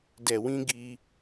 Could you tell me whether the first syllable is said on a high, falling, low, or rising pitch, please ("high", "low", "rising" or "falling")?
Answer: low